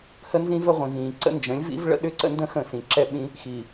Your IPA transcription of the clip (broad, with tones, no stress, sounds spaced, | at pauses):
h ə˦ n z ĩ˦ v ə˦ ʁʷ ĩ˨ v ĩː˨ ǀ ə̰˦ n d͡ʒ ə̃˨˦ lʲ v ḭ˦ v ɭ ə̰˦ ɗ ʏ˦ ǀ ə̰˦ n d ə̃˦ x ə̃˦˨ s ĩ˨ ǁ ɛ˦ ɓ ĩ˦ | x i˨